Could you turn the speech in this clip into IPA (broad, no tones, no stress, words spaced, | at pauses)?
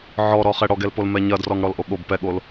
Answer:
ʕɔɾɔχɛ ɽɔɡɛlpolmɛ ɲɐdrɔŋ ɽɔlʔoɠob pɛɠol